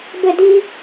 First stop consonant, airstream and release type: plain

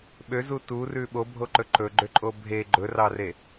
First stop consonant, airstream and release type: implosive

